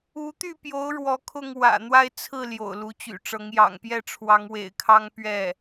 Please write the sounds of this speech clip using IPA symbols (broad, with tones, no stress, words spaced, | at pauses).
u˧˥t̪y˥˩pjo˧˥ʊ̯ ɻwɔ˧˥ kʰʊ˥˩ŋ wä̰˨˩ n̪wa˥˧ɪ̯t͡sʰɹ̩˥˩ ljo̰˨˩ʊ̯lu˧˥t͡ɕy̰˨˩ʈ͡ʂɤ˧˥ŋ jɑ̰˨˩ŋpjɛ˥˩ʈ͡ʂʰwɑ˧˥ŋ wḛ˨˩ɪ̯kʰɑ˥ŋ pɥɛ˥˩